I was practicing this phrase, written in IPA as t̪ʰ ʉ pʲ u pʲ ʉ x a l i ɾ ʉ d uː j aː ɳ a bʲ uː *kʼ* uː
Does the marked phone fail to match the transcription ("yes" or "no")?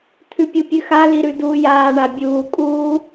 no